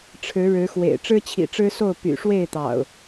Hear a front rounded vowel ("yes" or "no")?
yes